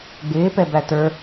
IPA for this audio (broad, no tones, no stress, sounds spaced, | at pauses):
ɡ͡b ɪː p ɛ b æ t ə˞